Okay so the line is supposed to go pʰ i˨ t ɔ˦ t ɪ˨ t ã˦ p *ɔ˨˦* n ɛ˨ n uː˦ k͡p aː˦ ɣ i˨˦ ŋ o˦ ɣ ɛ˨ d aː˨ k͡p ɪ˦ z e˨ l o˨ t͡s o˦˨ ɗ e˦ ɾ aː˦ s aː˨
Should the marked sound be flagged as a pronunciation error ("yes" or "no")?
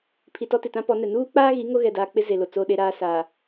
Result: no